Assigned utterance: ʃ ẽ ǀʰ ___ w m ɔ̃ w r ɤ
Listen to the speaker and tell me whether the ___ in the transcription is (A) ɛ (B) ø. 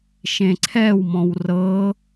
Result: A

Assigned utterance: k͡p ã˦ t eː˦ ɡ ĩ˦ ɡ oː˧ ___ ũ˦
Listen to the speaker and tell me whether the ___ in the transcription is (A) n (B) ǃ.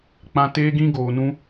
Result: A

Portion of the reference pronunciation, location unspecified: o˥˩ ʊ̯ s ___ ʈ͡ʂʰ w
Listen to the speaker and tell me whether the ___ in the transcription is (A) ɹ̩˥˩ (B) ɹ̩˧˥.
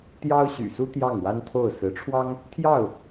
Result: B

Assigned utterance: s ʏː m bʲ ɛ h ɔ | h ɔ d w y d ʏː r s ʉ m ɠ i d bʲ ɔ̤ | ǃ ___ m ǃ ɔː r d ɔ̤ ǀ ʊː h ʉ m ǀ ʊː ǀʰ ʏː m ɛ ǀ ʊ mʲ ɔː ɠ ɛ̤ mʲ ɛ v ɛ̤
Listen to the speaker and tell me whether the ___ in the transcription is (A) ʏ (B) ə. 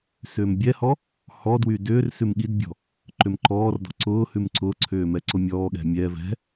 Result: A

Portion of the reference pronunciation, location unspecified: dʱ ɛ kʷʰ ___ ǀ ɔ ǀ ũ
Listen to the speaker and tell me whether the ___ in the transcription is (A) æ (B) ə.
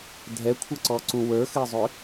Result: B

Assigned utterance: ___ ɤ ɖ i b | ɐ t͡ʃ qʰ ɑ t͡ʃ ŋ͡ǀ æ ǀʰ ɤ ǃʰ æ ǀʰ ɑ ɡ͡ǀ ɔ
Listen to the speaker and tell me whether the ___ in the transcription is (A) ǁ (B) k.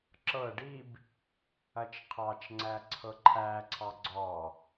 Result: A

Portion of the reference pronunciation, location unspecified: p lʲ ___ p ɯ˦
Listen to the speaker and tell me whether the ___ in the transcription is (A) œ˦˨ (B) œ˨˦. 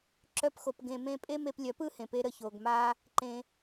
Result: B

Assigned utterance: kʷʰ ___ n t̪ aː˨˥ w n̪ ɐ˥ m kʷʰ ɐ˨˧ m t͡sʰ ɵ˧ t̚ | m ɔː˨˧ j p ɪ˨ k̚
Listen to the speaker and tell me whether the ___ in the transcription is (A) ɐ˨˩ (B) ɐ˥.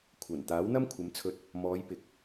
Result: A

